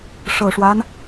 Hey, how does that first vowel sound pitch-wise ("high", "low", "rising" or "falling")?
low